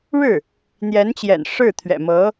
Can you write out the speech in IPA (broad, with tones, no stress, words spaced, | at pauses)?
ɻɻ̩˥˩ | n̪jɛ˧˥nt͡ɕjɛ̰˨˩n ʂɻ̩˥˩t̪ʰɥɛ̰˨˩mɤ˧˥